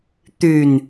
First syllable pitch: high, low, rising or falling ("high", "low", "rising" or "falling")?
low